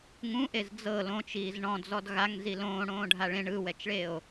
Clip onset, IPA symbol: ŋ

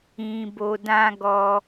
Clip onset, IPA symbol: ĩ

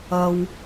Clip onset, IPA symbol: ɐ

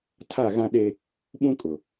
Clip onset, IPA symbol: tʰ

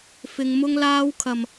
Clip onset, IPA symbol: f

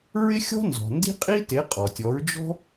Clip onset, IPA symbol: ɹ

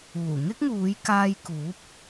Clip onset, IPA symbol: uː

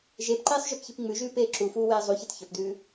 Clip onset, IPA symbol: ʒ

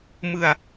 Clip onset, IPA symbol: m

